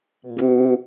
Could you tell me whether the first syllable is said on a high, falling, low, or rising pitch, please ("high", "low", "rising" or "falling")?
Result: high